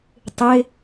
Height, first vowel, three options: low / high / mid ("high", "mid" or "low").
high